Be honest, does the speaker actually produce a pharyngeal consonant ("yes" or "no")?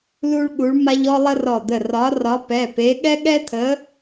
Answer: no